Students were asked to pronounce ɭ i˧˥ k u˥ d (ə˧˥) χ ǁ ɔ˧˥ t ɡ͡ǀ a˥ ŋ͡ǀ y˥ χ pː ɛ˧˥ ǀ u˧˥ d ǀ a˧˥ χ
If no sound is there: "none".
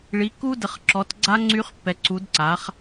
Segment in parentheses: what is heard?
ə˧˥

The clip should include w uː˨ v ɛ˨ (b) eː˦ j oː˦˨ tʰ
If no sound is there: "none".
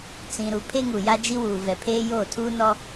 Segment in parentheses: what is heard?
pʰ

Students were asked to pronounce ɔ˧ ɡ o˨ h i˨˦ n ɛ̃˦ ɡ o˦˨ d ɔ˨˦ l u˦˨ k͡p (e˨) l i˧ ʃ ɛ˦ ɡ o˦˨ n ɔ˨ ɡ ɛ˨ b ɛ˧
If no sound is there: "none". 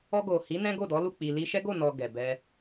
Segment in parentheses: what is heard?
i˨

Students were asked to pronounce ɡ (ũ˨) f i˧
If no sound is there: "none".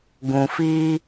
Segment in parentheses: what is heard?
ũ˨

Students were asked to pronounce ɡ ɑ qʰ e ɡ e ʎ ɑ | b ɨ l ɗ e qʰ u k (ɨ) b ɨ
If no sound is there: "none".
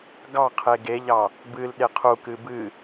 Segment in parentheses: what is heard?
ɨ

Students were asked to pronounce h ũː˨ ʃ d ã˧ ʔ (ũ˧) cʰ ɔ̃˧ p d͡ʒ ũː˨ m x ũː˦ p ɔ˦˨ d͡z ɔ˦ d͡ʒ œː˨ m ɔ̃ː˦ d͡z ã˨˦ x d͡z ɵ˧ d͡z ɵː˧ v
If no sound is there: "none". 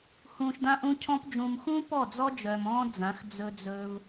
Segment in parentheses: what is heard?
ũ˧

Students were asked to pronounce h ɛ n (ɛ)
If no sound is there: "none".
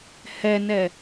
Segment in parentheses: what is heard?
ɛ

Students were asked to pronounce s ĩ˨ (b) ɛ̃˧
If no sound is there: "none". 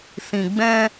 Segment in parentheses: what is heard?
ɡ͡b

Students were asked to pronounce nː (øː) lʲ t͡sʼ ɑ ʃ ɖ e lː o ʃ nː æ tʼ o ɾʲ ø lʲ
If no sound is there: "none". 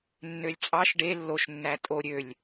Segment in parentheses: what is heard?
ø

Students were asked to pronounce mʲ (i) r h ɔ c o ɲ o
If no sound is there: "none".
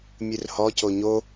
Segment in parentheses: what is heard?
ɨ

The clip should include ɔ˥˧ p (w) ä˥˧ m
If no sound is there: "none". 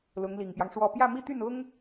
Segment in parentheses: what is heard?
j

